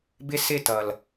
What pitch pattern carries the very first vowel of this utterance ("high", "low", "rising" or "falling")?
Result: high